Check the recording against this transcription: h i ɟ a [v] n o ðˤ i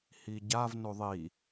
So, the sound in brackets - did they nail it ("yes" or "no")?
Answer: yes